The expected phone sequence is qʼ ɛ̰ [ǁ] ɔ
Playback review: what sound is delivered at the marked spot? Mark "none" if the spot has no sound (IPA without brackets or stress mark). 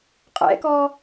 k